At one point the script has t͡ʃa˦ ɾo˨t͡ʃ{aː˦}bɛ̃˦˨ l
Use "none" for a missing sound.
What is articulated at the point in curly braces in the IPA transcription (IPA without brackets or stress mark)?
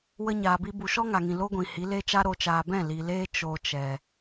aː˨